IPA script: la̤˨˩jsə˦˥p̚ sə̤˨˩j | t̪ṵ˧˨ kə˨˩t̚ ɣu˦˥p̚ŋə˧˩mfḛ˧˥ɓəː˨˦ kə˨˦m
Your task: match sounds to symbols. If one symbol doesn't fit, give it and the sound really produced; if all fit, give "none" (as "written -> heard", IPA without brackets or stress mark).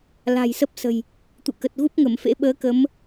none